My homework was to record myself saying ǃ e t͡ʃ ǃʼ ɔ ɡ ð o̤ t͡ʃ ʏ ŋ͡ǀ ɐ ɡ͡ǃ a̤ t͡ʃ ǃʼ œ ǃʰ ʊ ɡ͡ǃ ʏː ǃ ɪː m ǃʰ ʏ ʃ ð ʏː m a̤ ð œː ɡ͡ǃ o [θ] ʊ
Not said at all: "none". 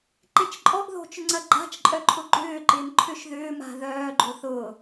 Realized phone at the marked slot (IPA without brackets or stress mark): θ